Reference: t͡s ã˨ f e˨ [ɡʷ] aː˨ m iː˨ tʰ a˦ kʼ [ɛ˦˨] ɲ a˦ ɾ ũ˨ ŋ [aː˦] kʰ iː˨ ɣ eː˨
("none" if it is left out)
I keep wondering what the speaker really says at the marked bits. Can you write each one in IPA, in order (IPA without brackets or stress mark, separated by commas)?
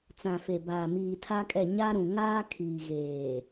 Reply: b, ɛ˦˨, aː˦